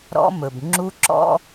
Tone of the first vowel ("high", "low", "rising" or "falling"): high